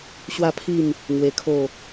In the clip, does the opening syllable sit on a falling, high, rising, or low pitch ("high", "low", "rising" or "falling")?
falling